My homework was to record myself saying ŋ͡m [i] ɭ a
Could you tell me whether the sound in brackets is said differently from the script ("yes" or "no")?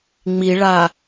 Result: no